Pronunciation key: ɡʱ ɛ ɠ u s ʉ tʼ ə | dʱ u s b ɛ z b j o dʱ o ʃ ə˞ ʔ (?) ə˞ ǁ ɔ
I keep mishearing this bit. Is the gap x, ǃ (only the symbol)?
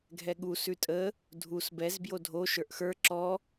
x